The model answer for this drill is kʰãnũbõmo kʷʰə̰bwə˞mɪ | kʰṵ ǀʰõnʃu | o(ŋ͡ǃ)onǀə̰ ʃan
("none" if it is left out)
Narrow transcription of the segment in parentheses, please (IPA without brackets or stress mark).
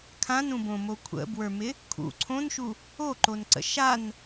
ǃ